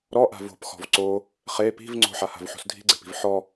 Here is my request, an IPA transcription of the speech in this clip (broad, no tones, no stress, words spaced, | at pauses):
ɾɔʔa̤ vo̤pxɔ̤v ǀo | χe pi̤v ŋ͡ǀo̤ħaha̤vħo̤s dʱi̤ɡ͡ǀe̤pi̤v ħɔ